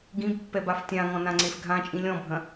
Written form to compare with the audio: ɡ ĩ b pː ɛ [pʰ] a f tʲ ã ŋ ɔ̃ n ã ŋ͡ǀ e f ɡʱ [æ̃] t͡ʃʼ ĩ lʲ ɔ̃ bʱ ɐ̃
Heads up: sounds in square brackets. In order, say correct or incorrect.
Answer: incorrect: b, incorrect: ã

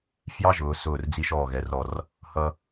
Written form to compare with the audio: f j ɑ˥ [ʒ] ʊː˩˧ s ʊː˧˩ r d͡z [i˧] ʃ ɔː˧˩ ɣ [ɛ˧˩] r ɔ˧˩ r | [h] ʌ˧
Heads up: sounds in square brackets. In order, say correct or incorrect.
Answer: correct, correct, incorrect: ɛ˩˧, correct

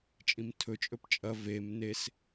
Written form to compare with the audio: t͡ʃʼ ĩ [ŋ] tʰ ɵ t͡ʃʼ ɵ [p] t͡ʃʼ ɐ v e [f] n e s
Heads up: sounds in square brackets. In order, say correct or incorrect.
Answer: incorrect: m, correct, incorrect: m

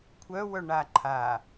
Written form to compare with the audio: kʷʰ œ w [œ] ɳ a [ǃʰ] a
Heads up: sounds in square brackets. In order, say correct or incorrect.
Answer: correct, correct

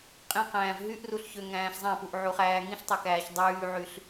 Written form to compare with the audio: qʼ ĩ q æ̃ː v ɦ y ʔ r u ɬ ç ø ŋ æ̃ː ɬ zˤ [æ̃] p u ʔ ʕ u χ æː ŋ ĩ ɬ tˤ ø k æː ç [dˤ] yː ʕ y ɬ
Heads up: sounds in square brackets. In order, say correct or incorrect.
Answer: correct, correct

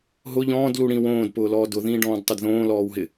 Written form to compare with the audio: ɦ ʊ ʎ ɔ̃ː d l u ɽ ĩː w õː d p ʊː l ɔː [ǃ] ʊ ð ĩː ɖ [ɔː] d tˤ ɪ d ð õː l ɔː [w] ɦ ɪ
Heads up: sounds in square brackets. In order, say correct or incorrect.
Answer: incorrect: d, incorrect: ɔ̃ː, correct

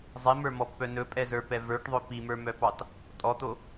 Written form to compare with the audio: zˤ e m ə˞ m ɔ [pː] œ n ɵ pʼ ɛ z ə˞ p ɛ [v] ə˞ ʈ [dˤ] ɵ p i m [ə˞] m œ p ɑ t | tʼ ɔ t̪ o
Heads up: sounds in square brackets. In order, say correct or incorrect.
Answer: correct, correct, incorrect: ðˤ, correct

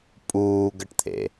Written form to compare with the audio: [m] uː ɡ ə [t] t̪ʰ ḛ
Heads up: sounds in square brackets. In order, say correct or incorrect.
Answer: incorrect: pʼ, incorrect: ʈ

